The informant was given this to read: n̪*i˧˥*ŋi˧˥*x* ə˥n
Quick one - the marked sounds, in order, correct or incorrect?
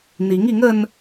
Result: correct, incorrect: ŋ

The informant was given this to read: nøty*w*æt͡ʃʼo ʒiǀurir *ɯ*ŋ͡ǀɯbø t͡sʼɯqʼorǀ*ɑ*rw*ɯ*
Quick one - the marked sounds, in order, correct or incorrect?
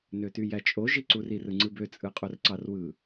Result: incorrect: j, correct, correct, correct

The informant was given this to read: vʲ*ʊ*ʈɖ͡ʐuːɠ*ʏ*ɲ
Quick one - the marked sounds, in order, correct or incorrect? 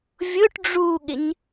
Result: correct, incorrect: ɪ

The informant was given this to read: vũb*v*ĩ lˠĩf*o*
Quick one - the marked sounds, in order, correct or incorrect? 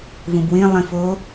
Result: incorrect: w, correct

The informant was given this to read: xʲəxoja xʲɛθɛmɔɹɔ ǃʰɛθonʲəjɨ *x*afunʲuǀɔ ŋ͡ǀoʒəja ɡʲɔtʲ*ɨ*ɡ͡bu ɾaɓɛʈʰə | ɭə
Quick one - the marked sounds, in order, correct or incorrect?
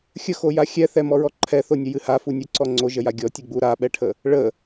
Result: incorrect: h, correct

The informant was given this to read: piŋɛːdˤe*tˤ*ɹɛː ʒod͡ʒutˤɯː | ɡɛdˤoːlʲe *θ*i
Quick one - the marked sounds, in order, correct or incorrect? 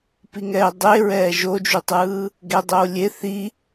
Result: incorrect: none, correct

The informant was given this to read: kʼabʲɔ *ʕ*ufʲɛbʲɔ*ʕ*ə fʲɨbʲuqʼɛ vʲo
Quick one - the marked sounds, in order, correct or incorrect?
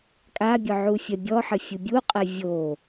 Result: correct, incorrect: ħ

